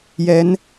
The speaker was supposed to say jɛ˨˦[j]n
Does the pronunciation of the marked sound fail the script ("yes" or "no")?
yes